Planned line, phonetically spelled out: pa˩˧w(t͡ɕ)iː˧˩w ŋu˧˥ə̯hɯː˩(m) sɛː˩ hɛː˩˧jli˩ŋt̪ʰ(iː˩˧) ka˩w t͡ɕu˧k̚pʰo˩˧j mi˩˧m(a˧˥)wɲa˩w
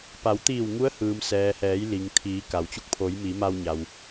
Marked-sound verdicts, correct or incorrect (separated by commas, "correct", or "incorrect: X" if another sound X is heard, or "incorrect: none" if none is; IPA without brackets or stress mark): incorrect: t̪, correct, correct, incorrect: a˧